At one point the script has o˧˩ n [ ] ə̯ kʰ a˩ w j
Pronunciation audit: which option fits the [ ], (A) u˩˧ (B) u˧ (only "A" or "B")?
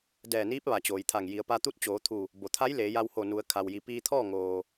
A